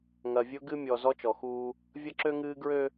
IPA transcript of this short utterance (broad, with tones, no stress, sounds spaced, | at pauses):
ŋ ɐ˨ vʲ ʊ˦ ɡ ɨ˦ mʲ ɔ˨ z ɔ˦ t͡ʃ ɔ˨ x uː˦ | vʲ ɐ˦ ǁ ø˦ ŋ ɨː˦ ɡ ɹ ø˦